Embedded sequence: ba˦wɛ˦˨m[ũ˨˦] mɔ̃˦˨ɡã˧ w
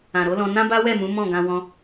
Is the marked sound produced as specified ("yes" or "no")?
yes